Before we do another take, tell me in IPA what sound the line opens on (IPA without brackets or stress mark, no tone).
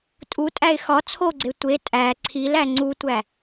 tʼ